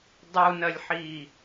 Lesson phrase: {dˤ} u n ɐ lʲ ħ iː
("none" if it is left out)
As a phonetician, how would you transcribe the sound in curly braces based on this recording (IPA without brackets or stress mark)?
dˤ